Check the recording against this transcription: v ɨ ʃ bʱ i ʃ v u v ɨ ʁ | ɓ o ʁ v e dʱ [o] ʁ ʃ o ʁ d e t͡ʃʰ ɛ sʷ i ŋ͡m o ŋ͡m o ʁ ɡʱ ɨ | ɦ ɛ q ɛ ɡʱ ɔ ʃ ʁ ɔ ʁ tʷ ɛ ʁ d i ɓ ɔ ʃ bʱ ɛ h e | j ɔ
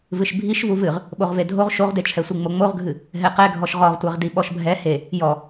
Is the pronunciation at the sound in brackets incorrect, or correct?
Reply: correct